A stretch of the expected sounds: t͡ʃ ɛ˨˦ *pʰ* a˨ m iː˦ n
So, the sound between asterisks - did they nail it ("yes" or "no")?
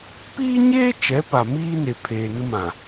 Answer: no